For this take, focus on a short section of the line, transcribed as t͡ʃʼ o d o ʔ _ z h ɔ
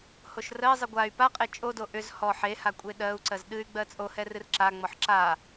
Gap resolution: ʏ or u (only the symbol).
ʏ